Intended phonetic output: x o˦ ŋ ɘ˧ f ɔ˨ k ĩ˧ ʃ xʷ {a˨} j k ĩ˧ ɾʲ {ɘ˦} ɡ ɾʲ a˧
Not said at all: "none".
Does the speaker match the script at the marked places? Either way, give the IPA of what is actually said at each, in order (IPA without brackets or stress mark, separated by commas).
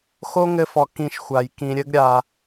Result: a˨, ɘ˦